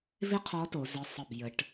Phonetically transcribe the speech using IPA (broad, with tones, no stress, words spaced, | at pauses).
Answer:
vɪ˥qʰɔ˧˥to˩˧ zə˧˥˧sˤə˥˩b jə˧˥ʈ